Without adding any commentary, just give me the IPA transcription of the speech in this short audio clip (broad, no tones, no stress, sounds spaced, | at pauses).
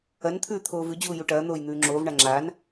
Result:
ɐ n t̪ʰ ʉː t̪ʰ oː v ʉ d͡ʑ uː j u ʈ ɐː n̪ oː j n̪ ʉː ŋ͡ǁ oː v ɳ a ŋ͡ǁ aː n